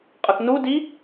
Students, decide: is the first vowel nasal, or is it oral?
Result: oral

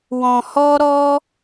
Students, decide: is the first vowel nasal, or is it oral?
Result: nasal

